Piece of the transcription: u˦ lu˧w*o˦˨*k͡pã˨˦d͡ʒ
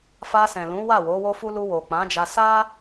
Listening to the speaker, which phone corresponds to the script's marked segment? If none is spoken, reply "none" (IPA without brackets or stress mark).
o˨